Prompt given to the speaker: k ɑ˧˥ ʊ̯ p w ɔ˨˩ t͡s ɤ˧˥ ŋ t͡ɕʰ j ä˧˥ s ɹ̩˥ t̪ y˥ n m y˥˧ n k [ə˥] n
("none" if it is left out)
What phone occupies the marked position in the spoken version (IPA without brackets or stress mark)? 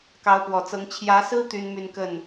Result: ə˥˩